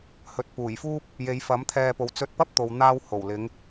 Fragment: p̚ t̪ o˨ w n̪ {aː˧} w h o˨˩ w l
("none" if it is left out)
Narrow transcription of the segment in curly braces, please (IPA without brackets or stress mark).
aː˧